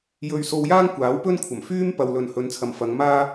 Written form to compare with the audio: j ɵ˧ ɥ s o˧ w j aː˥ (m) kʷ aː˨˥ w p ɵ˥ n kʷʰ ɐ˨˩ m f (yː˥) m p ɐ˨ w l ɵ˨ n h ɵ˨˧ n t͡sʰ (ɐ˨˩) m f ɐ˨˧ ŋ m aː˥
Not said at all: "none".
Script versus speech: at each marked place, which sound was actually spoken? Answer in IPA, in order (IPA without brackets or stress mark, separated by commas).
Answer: ŋ, yː˥, ɐ˨